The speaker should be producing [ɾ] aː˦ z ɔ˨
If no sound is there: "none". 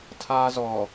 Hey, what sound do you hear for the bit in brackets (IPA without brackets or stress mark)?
tʰ